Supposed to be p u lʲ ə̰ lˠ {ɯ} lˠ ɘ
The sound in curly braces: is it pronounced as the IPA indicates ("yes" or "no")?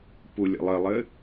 no